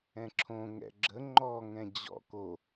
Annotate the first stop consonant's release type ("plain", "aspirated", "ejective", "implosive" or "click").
click